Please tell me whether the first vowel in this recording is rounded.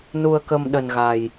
yes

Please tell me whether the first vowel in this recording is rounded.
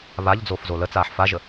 no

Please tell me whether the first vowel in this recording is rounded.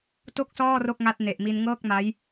yes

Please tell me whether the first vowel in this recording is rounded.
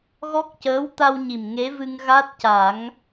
yes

